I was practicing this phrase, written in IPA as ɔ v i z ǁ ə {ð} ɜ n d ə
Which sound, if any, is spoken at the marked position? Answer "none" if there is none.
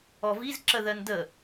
ð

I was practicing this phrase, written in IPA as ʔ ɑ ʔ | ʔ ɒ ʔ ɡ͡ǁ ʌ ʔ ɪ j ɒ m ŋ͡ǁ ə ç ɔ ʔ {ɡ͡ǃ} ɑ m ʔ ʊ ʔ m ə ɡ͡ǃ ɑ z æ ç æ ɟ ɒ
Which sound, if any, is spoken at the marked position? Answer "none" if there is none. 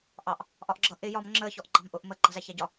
ɡ͡ǃ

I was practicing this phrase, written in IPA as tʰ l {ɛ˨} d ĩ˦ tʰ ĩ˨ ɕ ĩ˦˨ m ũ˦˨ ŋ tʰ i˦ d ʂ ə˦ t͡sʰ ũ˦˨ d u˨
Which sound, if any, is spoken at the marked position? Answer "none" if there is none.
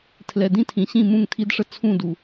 ɛ˨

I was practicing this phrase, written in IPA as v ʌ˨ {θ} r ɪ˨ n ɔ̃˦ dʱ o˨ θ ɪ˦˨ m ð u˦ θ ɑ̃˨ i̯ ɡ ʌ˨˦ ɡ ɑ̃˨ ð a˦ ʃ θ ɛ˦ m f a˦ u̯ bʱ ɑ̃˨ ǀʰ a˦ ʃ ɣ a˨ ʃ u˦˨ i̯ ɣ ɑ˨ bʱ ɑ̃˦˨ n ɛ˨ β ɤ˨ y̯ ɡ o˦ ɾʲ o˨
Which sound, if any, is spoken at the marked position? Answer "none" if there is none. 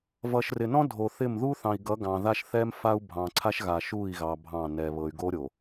ʃ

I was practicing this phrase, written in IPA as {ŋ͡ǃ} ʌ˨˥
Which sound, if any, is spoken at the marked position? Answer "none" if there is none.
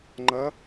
ŋ͡ǃ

